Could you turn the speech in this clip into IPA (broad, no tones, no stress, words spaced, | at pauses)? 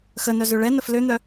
xənœzø ɭɛnəf løn̪œ